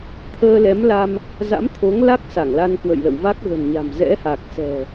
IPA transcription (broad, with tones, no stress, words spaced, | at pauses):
t̪ʰəː˧lɛ˨˦mla˧m | za̰˧˥mt̪ʰo˨˦ŋla˦˥k̚ sa˧˩ŋla˧nkwə̰˧˨jlə̰ː˧˨w va˦˥k̚ɣə̤˨˩n ɲa̤˨˩m zɛ̰˧˥ha˨˩k̚sɛ̤˨˩